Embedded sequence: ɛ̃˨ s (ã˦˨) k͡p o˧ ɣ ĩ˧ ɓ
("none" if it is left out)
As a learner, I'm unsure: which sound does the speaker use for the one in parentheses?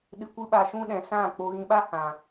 ã˦˨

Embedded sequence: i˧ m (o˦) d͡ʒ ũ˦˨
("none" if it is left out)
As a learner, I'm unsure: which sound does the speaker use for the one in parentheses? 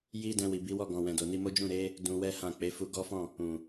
o˦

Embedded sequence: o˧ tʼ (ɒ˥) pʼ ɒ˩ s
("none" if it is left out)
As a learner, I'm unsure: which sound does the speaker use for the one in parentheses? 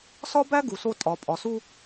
ɒ˩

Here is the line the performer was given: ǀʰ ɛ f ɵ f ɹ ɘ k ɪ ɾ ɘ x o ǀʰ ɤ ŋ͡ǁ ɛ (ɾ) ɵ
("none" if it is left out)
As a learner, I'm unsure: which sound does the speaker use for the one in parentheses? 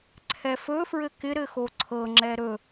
ɾ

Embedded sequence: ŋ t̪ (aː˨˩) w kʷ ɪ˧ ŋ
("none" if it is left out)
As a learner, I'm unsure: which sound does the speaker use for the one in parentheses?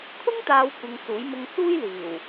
aː˨˧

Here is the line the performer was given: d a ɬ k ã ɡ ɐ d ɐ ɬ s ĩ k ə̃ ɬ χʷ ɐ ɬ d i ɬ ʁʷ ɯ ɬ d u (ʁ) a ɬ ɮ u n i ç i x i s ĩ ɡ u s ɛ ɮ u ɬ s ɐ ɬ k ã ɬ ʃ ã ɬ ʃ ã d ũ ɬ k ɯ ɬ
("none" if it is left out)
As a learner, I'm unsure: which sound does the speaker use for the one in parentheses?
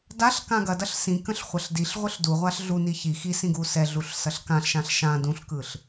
ʁʷ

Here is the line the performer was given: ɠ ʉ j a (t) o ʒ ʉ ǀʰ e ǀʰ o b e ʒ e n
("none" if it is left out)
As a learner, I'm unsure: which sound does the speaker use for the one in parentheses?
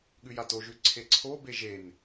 t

